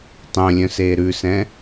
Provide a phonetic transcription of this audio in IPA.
tˤœ̃lʲœ̃seː ɾʉsɛ̃

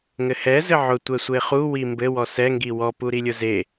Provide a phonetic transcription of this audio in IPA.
ŋɘhɛ zɘʕʊ tʷɛsʷeχu wimbɘ wɔsɛ ŋɡiwɔ puɾilʲʊze

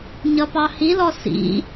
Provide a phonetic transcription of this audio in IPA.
ɲʌpɑhilɔ sḭ

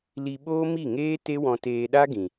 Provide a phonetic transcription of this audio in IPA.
li˧ɓoː˦mi˦˨ŋeː˦ te˦wɔ̃˧ teː˧ɗa˦ ɡĩ˨

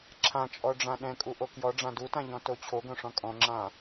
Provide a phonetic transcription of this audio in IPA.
ǁʰãt͡ʃʼɔɖ͡ʐã ɗɛ̃kʼuʔo kjɔɖ͡ʐã dutãʎɔ̃to t͡ɕʰoɡõʂɔ̃ kʼɔ̃ŋ͡ǁã

